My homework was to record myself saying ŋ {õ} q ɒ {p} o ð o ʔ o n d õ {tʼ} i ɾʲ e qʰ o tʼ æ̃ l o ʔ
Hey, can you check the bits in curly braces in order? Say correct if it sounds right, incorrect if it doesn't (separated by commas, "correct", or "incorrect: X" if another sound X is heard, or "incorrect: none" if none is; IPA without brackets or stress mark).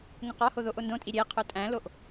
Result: correct, incorrect: h, correct